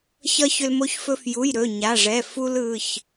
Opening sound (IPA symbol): ç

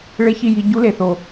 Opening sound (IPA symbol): ɭ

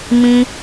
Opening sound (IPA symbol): m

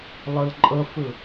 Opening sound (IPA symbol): lˠ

